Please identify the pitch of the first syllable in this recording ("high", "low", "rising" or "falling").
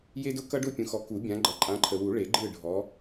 high